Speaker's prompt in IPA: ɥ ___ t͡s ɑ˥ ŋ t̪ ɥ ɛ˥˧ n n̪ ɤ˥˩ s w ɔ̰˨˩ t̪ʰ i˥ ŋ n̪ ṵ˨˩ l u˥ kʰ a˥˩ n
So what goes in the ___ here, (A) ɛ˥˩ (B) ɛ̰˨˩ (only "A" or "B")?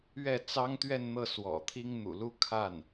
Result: A